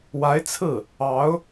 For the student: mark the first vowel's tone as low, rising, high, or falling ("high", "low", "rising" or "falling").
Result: rising